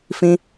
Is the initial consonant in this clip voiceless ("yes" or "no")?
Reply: yes